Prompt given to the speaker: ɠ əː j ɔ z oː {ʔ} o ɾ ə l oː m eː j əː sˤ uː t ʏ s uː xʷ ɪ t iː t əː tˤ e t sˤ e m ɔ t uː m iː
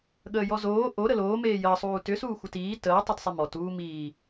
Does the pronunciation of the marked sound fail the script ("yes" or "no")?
no